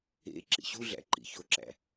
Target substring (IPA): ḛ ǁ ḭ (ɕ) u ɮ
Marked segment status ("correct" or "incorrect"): correct